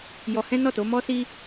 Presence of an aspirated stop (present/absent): absent